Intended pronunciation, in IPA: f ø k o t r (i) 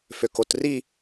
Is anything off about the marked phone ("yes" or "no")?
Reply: no